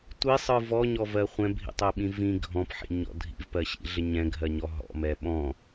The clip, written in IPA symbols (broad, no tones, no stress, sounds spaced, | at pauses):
tʷ i sˤ ɯ v ɔ ɲ ɔ v ɜ χʷ ɛ̃ bʱ ḭ tˤ ɛ ɓ ĩ v ĩ ɡʱ ɔ̃ p ħ ḭ ɲ ɔ̰ dʱ ḭ v p ɜ ɕ ḭ ɮ ɪ ɲ ɛ̃ ɡʱ ɜ ɲ ɔ ɦ ɔ̰ m ɛ ɓ ɔ̃